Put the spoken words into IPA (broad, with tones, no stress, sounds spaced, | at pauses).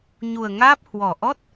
ɲ u˨˩ ə̯ ŋ aː˦˥ p̚ h w ɔ˨˩ ʔ ɔ˦˥ t̚